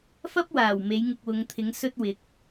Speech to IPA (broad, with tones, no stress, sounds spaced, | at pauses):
f ɐ˥ p̚ w aː˨˩ w m e˨˥ j ŋ ɪ˧ k̚ w ʊ˨˧ ŋ t̪ʰ ɪ˨˥ ŋ s ɵ˥ t̚ w ɪ˨˥ k̚